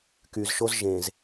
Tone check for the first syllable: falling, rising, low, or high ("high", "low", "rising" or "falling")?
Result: low